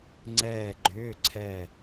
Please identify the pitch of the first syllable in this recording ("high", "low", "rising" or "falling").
falling